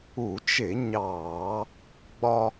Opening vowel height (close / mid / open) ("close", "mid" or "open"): close